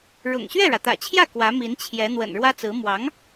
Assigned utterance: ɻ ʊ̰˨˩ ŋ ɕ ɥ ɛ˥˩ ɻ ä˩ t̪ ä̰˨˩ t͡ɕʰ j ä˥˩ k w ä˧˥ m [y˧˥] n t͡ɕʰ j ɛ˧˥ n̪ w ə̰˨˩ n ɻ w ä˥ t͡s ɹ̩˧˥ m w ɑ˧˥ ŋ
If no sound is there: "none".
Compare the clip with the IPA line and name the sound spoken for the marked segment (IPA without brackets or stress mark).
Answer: i˧˥